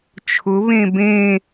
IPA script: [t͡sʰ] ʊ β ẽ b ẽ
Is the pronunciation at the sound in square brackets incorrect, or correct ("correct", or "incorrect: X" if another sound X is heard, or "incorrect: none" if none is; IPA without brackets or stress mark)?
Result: incorrect: t͡ʃʰ